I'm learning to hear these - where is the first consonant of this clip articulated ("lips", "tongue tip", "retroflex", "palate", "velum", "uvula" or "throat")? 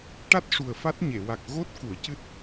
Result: retroflex